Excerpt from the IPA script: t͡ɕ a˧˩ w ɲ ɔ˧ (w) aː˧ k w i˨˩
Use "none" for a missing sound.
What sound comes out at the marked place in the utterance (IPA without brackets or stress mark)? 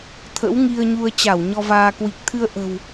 v